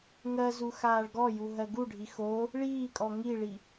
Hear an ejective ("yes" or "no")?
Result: yes